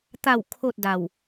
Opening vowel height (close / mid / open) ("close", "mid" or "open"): open